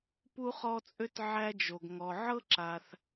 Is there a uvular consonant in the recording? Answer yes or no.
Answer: yes